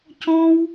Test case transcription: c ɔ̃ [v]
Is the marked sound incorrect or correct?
incorrect